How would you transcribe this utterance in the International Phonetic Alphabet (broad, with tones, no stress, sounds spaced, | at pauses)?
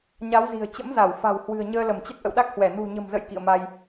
ɲ a˨˦ w z i̤˨˩ ə̯ t͡ɕ ə̰˧˥ m z a˧˩ w f a̤˨˩ w h w ɨ̤˨˩ ə̯ ɲ əː˧ l ə˧˩ m t͡ɕ ə˦˥ t̚ ʔ ə̰˧˨ w ɗ a˦˥ k̚ h w ɛ˧˩ n ṳ˨˩ ɲ ə̤˨˩ m z ə̰˧˨ j k ḭ˧˨ ə̯ m a˧ j